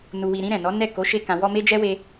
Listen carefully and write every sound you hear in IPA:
nu˨wi˨ɾĩ˧ ɾɛ̃˨nɔ˨˦ nɛ˦˨ ko˨˦ʃe˧ kã˨wɔ˧ me˦d͡ʒɛ˦we˧

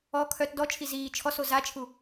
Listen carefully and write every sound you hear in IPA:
ɔ kʰœt dɔt͡ʃʰi ziː t͡ʃʰɔso zat͡ʃʰu

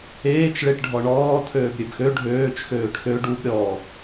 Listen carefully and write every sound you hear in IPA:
eːt͡ʃ ɭeʈɖʱɔɳɔː tʰøːbɾʲøbxø ɖʱøːt͡ʃ xøːʈxø ɖub ɾʲɔ

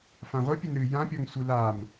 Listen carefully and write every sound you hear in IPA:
fãʁʷɨ pʲɘnɾɨjã pʲɔŋsʷɨlam

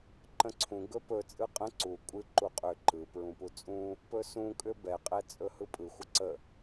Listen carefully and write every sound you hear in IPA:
ǃə̃ǀʰũ ɡɵpɵ t͡sʼɯqʼə̃ ǀu kʷʼɨ ǃuqʼʏ ǃɯ pɹũput͡sʼũ | pɵsũ kʼʏbɛ qʼɛt͡sʼɵhɯpʼɯ xʷəǀə

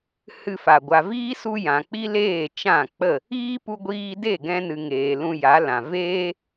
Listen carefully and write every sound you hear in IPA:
hɨ˦fa˨ ɡʷa˨viː˦su˧ jã˨k͡pi˦leː˦˨ t͡ʃã˦˨k͡pə˦˨ | iː˦pu˧ɡʷiː˧de˦˨ ɡɛ̃˧nɨ˨ ŋeː˨ lũ˧ja˨˦lã˨ veː˦

